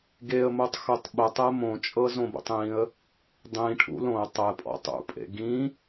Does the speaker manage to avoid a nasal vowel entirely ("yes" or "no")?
no